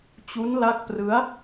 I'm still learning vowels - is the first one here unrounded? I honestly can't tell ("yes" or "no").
no